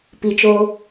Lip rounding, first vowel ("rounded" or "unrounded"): unrounded